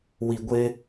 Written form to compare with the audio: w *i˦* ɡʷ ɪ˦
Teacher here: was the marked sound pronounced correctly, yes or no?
no